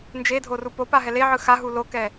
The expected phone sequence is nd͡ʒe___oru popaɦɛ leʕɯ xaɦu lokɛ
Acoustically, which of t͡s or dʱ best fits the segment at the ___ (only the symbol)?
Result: dʱ